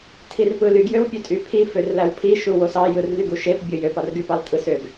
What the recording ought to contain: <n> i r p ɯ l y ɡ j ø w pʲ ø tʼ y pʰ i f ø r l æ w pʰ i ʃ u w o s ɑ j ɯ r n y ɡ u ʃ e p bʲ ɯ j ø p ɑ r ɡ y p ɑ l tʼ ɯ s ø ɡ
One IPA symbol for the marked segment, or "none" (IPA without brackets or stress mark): tʰ